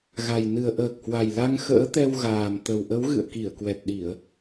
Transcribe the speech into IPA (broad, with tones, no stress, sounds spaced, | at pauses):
ɣ a˨˩ j n ɨ˨˩ ə̯ ʔ əː˨˩ k̚ h w a˨˩ j l a˧ ŋ x ə̰ː˧˥ t̪ ɛ˧ w ɣ aː˨˩ m t̪ ə˨˩ w ʔ ə˨˦ w ɣ ɨ̰˧˨ ə̯ k i˧˩ ə̯ k w ɛ˨˩ t̚ ɗ i˧˩˨ ə̯